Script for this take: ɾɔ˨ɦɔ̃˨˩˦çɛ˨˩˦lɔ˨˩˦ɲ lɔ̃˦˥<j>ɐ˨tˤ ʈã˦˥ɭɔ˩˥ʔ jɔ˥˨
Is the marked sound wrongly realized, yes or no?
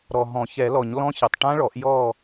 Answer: yes